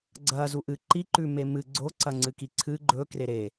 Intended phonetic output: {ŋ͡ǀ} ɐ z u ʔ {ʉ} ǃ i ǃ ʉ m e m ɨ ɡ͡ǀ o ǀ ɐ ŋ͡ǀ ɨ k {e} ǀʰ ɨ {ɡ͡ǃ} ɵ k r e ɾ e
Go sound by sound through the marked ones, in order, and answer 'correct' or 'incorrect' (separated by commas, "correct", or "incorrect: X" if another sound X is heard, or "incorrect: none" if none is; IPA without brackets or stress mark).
incorrect: ɡ͡ǀ, incorrect: ɨ, incorrect: i, correct